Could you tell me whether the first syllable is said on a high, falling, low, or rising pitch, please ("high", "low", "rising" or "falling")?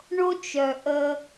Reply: high